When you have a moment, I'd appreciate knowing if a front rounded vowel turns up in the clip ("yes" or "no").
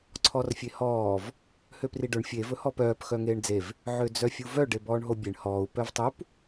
yes